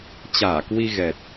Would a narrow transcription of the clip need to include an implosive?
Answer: no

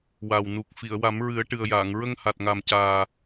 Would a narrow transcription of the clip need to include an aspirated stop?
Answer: no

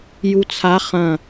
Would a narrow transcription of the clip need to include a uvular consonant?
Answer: yes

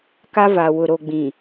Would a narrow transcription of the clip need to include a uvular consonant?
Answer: no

